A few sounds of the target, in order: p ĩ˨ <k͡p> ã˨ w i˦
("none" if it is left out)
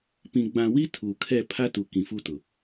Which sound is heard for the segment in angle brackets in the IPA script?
ɡ͡b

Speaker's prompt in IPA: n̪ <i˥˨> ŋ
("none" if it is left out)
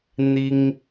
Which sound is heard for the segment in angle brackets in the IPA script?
i˦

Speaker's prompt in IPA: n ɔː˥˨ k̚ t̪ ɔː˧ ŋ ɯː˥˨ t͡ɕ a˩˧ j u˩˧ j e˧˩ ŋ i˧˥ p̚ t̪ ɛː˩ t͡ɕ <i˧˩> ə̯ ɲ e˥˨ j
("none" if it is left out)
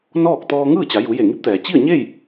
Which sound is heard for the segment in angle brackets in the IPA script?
i˥˨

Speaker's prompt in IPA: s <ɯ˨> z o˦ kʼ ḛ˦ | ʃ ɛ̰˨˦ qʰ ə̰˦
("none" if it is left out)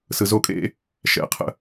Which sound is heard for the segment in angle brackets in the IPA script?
ɯ˨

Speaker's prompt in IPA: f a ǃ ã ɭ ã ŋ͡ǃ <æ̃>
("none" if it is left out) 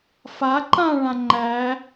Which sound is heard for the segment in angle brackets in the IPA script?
æ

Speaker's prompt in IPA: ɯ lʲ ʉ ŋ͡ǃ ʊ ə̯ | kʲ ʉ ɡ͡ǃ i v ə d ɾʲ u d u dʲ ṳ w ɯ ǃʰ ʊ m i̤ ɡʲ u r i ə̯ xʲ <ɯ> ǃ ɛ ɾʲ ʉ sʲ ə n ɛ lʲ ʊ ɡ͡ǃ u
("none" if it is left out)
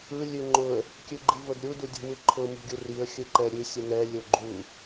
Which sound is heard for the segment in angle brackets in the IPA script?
ɯ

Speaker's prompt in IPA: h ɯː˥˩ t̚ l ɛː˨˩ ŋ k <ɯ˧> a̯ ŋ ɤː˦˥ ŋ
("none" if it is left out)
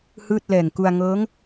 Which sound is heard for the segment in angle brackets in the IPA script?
u˧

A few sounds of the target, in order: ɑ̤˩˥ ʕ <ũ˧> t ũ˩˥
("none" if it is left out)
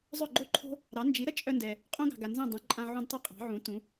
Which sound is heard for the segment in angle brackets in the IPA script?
ũ˩˥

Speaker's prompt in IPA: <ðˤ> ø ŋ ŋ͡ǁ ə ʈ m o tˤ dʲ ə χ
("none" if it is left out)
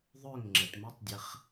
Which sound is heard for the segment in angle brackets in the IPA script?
ðˤ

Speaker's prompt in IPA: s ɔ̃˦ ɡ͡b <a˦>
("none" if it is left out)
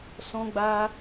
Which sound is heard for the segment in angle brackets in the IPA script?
a˦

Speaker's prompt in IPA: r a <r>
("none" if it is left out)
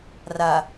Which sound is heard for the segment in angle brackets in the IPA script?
none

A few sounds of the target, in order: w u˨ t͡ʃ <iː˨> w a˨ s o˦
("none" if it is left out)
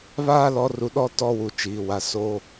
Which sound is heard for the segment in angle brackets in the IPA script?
iː˨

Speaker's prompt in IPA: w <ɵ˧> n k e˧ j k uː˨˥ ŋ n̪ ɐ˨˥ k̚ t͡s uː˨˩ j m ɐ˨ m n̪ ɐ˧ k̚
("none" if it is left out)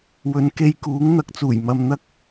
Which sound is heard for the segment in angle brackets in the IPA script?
ɵ˨˧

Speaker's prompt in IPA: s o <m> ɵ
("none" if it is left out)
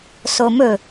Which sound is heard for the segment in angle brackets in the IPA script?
m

